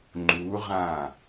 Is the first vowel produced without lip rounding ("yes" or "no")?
no